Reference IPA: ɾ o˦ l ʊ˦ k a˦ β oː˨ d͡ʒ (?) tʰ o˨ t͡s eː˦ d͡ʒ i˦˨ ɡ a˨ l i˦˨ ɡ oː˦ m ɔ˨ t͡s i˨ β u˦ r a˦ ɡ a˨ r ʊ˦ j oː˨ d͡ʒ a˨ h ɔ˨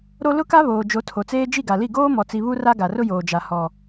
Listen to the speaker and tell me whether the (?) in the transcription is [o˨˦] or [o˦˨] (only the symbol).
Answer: o˨˦